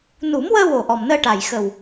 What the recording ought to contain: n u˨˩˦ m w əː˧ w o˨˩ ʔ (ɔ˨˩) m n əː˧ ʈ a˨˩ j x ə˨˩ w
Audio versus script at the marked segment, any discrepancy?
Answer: no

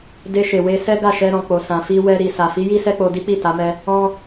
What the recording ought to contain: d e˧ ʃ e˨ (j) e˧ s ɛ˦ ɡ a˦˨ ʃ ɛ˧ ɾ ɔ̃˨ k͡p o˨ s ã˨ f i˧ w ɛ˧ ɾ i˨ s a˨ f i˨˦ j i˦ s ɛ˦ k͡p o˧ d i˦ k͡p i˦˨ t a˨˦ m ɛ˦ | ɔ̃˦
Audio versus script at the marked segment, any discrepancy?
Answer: yes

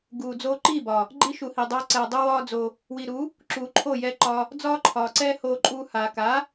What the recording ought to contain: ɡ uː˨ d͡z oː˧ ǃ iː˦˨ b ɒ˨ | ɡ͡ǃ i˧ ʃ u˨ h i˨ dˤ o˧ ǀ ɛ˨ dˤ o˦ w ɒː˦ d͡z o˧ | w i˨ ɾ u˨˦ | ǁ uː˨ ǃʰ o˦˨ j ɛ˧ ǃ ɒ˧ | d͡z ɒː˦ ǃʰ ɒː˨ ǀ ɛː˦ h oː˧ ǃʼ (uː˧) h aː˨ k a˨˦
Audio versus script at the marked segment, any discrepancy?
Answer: no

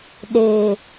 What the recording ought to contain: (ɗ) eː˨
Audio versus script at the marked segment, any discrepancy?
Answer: no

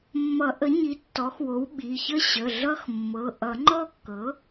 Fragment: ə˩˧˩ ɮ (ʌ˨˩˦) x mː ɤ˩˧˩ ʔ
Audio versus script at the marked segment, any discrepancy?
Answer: yes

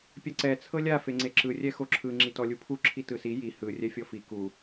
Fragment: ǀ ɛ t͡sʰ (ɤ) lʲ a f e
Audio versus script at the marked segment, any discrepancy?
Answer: no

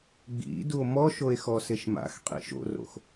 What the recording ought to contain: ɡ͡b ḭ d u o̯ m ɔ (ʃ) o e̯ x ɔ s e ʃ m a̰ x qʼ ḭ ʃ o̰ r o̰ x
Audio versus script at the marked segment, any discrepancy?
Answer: no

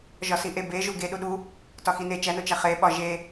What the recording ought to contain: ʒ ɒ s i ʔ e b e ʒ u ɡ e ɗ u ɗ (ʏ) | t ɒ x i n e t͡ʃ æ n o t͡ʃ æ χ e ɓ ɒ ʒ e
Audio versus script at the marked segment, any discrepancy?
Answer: yes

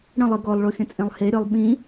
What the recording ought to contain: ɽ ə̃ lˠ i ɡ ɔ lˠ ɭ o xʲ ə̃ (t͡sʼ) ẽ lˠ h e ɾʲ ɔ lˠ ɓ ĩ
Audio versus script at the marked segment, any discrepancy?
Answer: no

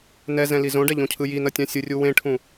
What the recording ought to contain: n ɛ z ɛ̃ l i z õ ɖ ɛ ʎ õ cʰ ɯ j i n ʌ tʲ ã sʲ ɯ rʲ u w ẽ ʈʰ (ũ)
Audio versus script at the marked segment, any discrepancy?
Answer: no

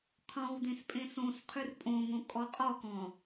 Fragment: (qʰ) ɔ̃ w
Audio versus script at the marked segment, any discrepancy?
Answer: no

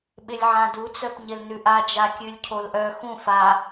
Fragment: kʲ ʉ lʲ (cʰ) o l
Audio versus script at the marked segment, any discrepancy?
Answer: no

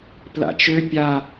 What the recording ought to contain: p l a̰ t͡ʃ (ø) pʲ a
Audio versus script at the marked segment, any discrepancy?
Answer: no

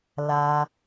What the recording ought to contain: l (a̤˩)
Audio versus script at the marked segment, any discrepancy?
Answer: yes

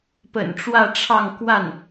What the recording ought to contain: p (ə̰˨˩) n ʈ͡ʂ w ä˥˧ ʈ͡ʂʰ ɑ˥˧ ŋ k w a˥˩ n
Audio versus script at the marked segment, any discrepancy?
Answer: no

